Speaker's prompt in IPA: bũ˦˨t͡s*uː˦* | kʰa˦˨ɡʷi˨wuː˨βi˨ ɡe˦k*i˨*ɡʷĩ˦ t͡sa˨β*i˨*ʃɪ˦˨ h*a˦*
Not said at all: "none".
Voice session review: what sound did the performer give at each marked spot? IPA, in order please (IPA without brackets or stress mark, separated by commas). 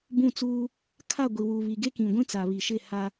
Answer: uː˦, ĩ˨, i˨, a˦